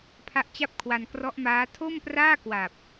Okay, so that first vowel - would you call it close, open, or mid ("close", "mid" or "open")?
open